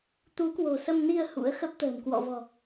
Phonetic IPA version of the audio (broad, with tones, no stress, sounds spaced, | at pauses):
t̪ u˨˦ k w o̤˨˩ s ə˧ m n i˧ ə̯ h ṵ˧˥ ə̯ x ə˦˥ p̚ t̪ ə̤ː˨˩ n k w ɔ̰˧˨ v ɔ̤˨˩